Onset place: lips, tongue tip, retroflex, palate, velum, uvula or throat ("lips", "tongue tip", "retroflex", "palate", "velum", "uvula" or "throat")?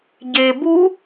palate